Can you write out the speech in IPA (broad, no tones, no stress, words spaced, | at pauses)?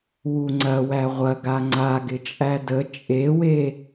wuŋ͡ǀɐwæ ʁʷɐɡa ŋ͡ǀa ɡɪt͡ʃʼædə t͡ʃʼewe